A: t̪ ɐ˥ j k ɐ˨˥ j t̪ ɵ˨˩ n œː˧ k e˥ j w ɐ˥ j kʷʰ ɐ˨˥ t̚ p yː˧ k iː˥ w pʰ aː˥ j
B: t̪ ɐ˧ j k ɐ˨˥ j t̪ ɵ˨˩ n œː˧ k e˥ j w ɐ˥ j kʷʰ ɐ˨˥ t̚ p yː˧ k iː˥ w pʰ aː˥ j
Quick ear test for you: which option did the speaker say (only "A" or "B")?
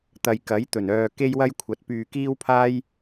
B